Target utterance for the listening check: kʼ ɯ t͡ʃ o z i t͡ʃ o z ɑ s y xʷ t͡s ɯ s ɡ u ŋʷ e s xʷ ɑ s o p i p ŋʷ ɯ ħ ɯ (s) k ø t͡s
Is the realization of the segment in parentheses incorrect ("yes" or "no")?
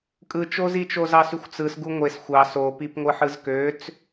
yes